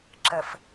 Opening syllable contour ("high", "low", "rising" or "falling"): low